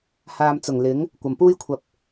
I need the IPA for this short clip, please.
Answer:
haː˨mt͡sʊ˨˩ŋ lɪ˨˥ŋ | kʷɐ˨˩mpuː˥jkʷʰɐ˧p̚

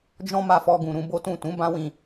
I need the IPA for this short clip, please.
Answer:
d͡ʒɔ̃˦ma˧fɔ˧ɡũ˨ ɾũ˧bo˦tũ˦˨ tũ˨˦bã˦wĩ˧

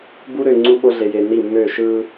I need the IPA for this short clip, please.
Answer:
bu˦ɾø˧ ŋ͡ǀu˦ɓo˦ɮe˧je˧ ni˦˨mːø˦˨ ʃɯ˦

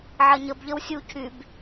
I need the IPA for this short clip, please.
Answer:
ʕɐɲəb ʎəwsʲu cʰyb

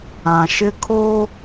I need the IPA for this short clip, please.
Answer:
ã˨ʃɪ˦kʰo˦

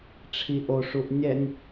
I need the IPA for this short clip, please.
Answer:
ʈ͡ʂʰiʔo ʂuʔnʲɛnʲ

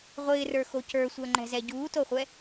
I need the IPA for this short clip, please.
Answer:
ʁʷɪːrə˞xo cə˞sʷəːŋ͡ǃɛ̤zɛ ɟuːtoχʷɛ

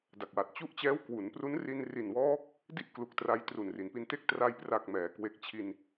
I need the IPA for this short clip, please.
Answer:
da˨˩k̚wa˨˩t̚ t͡ɕu˦˥ʔt͡ɕɛː˦˥w kwu˩˦npru˦˥n ri˧nri˨˩nwɔː˦˥k̚ | di˥˩ʔklu˨˩k̚tra˧j tru˨˩nri˩˦npi˧nte˥˩k̚ tra˧jpra˨˩k̚ mɛː˩˦kwe˨˩k̚t͡ɕʰi˧n

